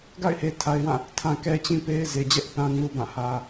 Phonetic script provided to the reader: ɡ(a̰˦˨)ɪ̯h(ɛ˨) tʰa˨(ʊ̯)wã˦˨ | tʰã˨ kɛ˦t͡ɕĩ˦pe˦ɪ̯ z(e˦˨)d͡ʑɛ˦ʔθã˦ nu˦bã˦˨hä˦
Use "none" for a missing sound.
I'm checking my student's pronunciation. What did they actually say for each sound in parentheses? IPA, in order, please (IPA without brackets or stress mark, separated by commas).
a̰˦˨, e˨, ɪ̯, e˨